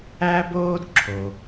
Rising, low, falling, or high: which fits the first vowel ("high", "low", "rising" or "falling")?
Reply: high